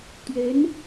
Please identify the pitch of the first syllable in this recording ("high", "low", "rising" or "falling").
rising